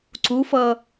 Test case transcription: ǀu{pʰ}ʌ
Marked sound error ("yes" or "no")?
yes